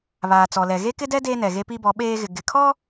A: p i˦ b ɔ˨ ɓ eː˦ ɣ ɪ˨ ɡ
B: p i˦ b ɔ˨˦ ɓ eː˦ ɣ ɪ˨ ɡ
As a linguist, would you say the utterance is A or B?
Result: B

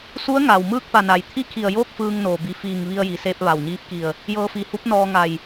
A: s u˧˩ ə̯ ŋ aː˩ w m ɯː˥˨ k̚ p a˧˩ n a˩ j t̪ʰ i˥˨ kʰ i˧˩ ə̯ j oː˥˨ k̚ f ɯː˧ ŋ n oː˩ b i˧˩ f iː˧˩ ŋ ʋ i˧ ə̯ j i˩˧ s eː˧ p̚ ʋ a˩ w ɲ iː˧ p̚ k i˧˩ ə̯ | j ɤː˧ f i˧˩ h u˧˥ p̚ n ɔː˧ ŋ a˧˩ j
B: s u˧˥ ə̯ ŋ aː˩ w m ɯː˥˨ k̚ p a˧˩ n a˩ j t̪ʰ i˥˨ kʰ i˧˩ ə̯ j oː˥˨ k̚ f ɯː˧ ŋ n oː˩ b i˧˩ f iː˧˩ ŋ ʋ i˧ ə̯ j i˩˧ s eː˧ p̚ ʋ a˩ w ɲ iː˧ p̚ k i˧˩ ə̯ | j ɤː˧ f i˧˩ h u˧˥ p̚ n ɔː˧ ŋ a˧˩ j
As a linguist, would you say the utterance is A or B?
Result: B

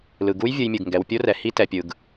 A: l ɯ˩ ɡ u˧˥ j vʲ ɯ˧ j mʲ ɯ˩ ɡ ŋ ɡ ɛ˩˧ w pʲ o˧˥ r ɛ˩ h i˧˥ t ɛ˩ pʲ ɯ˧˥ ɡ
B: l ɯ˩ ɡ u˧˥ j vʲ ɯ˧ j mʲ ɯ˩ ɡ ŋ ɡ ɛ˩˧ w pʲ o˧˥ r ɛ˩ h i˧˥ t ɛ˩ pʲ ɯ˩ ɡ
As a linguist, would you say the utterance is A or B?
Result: B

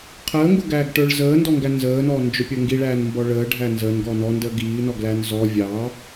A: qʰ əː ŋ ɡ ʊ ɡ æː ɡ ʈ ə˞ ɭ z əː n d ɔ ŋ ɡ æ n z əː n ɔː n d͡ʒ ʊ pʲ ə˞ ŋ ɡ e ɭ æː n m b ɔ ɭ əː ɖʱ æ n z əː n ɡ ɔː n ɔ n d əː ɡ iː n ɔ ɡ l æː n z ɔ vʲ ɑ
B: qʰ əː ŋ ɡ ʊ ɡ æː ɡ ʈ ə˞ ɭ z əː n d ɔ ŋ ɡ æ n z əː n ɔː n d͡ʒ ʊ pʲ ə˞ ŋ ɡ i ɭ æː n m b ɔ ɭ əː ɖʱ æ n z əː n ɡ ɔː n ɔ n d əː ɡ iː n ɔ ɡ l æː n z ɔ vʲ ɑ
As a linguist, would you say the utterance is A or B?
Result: B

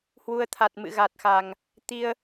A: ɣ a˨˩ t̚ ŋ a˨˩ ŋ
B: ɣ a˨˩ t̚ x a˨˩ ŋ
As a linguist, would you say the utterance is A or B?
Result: B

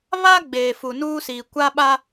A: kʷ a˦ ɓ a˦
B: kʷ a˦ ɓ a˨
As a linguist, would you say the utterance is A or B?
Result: A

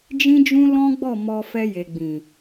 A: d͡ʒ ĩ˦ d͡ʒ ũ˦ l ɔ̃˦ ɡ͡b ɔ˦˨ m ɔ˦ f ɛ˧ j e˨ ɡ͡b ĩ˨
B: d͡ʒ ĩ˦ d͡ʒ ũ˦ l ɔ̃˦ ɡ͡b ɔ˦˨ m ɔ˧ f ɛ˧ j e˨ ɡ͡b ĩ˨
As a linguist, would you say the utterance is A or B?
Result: B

